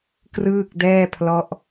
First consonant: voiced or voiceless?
voiceless